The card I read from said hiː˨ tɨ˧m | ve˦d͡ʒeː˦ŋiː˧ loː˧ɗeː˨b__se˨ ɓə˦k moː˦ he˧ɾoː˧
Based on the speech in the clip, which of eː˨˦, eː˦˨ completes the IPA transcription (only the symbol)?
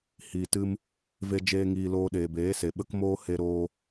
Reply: eː˨˦